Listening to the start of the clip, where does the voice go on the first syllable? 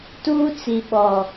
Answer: high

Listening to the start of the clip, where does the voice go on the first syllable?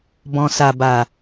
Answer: low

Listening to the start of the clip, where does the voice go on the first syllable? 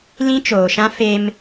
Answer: high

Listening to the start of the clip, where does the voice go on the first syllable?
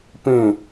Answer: falling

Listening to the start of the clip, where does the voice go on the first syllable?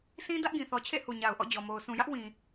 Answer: high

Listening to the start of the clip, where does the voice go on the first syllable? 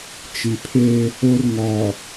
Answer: low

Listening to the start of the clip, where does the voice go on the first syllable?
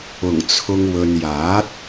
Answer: low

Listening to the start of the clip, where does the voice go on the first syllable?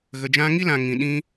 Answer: low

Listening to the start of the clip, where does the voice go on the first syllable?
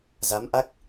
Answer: rising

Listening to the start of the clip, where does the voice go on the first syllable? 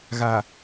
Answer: low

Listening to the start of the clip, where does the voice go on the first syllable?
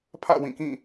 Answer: falling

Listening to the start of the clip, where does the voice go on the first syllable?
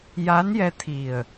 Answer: rising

